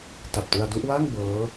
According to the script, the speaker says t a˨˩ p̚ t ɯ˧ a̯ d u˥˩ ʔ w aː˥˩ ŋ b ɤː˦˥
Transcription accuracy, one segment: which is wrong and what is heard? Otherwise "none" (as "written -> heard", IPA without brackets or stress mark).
none